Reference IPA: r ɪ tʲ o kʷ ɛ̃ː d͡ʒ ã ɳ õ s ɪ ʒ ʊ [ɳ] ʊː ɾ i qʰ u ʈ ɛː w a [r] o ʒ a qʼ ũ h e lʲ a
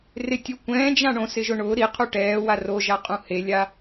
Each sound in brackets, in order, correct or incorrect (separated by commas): correct, correct